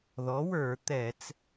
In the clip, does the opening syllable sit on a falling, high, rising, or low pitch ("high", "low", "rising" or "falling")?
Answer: rising